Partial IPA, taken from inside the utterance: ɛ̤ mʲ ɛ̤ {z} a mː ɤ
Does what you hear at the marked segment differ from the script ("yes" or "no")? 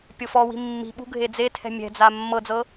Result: yes